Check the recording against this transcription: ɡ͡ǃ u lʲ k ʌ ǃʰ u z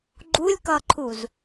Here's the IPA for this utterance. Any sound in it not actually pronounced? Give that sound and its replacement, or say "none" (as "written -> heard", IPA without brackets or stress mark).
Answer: none